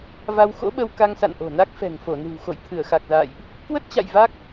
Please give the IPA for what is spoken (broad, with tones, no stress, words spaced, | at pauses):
va˧wxo̰˧˥ɓə˧w ka˧ŋsa̰˧˨n ʔo̤˨˩na˦˥k̚fɛ̤˨˩ŋ fo˧˩nɨ̤˨˩w xo̰˧˨jt̪ʰɨ˧˩ə̯xa˨˩k̚za̰ː˧˨jʔ | kwə˦˥t̚t͡ɕa̰˧˨j va˦˥k̚